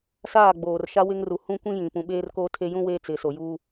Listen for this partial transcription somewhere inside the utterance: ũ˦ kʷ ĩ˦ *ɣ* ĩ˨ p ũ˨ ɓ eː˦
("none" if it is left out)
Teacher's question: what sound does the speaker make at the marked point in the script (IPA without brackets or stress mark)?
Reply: j